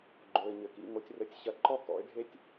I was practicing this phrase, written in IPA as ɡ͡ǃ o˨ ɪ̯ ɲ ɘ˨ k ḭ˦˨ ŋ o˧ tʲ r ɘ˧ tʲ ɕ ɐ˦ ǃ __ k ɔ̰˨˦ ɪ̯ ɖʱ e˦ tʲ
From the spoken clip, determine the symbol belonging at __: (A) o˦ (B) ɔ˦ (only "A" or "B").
B